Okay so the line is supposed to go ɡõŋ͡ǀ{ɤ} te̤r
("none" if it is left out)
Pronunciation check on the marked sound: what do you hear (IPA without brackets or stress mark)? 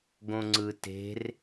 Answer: ɯ